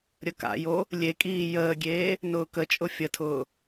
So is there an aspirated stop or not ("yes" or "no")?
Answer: yes